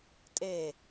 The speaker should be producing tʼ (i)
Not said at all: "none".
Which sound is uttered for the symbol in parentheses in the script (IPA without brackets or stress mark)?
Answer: e